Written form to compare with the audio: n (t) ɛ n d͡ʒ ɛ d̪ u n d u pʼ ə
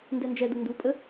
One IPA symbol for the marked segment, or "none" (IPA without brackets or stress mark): d